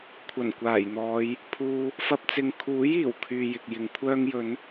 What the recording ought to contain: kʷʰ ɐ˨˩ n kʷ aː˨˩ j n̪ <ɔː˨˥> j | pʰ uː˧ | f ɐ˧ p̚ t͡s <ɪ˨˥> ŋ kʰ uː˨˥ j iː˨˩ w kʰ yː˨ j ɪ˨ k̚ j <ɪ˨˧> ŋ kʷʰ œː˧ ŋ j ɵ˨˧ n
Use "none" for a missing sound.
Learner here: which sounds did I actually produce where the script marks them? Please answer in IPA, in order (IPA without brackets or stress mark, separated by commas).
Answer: ɔː˨˧, ɪ˨, ɪ˨˧